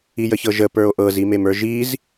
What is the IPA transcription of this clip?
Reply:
ijəçɤʒə pə˞o̯ʔɤz imemə˞ʒiz

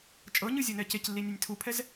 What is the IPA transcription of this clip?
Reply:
t͡ʃʼɤɲɯzʲɤnɛ ceclːinʲanʲ tʰupʰɛz

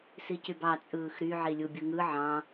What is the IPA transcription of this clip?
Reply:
sicybɑ t͡sʼɯːxɾy ʕilʲubʲɯŋɯ ʕɑ̃

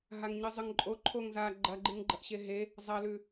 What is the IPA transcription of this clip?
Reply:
ɦaŋɲɨzˤɨŋǃʼo ǃʰoŋza ɡ͡ǃɐɡ͡ǃɨŋ ɡ͡ǃɐʔɕeɦe | zˤɐlʉ

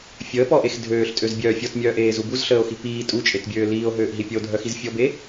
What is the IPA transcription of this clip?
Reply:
fʲəːpɔʔex dʱøːɬtʼøzbʲœː fʲɔtmʲœːʔeːzu buzɬəːo̯xi piː tʼut͡ʃʼetbʲøː liːo̯ɦøːʔɦi pʲəo̯dʱœxiz fʲɔbe

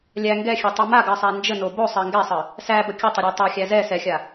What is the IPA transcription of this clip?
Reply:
lʲæ ŋɡɛxʲɛtˤu maɡɜsˤa nd͡ʒəno bosˤɜ ŋɡɛsˤə | sæbə kʲətˤəɾʲa tˤɛxʲæ zɛ sɛxʲa

